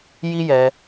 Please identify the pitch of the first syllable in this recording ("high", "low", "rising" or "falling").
high